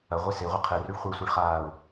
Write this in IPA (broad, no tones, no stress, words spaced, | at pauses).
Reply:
ɐʁʷe seʁʷɘ qʰɘryɭ χʷɘsʷeɭχaːʊ̯